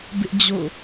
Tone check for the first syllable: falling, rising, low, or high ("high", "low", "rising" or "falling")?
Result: high